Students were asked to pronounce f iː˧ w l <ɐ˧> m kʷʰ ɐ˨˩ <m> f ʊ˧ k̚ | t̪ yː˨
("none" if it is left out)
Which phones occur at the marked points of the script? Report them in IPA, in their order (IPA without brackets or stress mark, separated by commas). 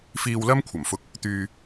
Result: ɐ˥, m